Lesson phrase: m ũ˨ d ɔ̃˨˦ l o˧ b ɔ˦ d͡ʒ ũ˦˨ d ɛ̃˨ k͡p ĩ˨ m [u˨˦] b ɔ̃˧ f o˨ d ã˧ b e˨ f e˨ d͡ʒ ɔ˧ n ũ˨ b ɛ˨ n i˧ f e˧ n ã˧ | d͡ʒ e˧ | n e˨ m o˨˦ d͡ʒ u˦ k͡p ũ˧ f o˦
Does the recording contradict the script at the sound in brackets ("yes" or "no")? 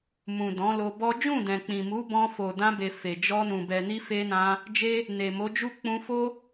no